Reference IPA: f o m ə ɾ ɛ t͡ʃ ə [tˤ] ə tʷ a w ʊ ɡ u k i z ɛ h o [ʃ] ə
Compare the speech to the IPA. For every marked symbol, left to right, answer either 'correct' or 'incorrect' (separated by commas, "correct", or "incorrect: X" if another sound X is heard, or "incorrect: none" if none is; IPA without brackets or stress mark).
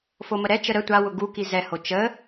incorrect: ɾ, incorrect: t͡ʃ